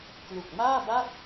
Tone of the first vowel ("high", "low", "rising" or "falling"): low